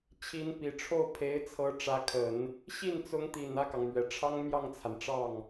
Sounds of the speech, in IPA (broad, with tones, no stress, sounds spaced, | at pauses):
t͡ɕʰ i˧˥ n p i˨˩ ʈ͡ʂʰ o˥˩ ʊ̯ pʰ e˧˥ ɪ̯ t͡sʰ ɤ˧˥ ʈ͡ʂ ä˧˥ kʰ ə˨˩˦ n | ɕ i˥˩ n t͡s ʊ˧˥ ŋ t̪ i˨˩ n ä˥˩ k ɑ˩ ŋ m ɥ ɛ˨˩ ʈ͡ʂʰ ɑ˥ ŋ m j ɑ˥˩ ŋ t͡sʰ a˩ n ʈ͡ʂ ɑ˥˩ ŋ